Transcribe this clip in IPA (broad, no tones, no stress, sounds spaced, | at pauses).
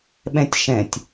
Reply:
ɓ ɛ̃ tʲ ʃ ɛ̃ tʲ